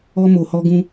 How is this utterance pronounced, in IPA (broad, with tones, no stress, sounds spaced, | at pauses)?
ɔ˦ m o˧ h ɔ˦ ɡ ũ˦